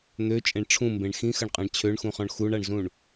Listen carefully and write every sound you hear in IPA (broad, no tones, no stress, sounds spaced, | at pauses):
n̪ ø t͡ʃʼ ẽ ɳ ʈ͡ʂʰ ũ m b ẽ ɳ x ĩ x ɐ ɳ qʼ ã ɳ t͡ɕʰ ø ɳ x ũ χ ɔ̃ ɳ x u ɳ a ɳ z ũ ɳ